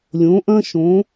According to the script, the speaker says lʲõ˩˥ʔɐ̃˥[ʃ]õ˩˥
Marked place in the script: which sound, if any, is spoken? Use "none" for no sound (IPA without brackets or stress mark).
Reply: ʃ